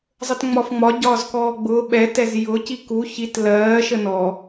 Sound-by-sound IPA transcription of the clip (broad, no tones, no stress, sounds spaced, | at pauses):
zˤ ə t ŋ͡m ɒ f ŋ͡m ɒ ɟ ɒː z k ɔː ɡ͡b ʊː ɓ ɛ t ɛ z j ʊ c i k u ç i t l ɜː ʃ ə n ɔ